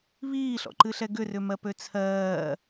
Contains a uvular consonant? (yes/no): no